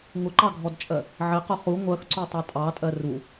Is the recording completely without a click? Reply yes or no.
no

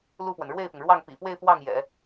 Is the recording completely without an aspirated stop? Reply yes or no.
yes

